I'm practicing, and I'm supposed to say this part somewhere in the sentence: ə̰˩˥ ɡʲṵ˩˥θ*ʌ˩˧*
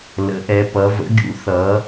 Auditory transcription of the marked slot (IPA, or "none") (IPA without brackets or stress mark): ʌ˩˧